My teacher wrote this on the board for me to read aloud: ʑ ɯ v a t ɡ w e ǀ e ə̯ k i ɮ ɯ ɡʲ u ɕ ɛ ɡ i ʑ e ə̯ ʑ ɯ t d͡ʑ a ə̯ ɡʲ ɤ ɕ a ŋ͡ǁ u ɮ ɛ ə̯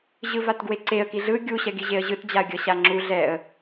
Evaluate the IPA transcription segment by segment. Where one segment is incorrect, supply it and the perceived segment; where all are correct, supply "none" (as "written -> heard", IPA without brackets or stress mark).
none